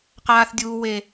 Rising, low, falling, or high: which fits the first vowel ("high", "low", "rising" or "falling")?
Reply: high